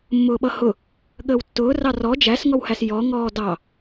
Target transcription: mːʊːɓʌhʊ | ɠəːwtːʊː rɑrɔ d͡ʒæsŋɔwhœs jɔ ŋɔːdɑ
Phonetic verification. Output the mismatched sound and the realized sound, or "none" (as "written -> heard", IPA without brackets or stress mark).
œ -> æ